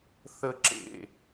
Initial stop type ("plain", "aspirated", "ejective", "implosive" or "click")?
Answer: click